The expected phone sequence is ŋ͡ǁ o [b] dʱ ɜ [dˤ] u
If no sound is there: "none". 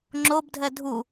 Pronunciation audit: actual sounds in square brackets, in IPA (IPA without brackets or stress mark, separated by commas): b, dʱ